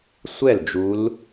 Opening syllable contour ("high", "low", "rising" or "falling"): falling